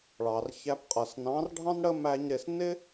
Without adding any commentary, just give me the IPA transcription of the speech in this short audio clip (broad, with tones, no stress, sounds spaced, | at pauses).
ɭ ɑ˨ r ç æ˧ p qʼ ʌ˨ s n ɑ̃˨˦ r ɖʱ ɑ̃˦ n ɽ ə˦ m æ˦ ɲ ɾ ɪ˦˨ s n ɪ˦